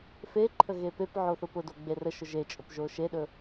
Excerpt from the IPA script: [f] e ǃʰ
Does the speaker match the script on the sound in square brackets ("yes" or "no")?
yes